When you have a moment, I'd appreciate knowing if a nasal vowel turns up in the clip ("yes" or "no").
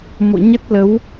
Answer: no